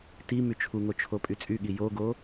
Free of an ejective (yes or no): no